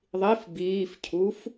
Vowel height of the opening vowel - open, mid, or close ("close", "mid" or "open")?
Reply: close